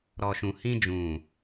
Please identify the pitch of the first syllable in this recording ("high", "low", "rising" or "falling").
low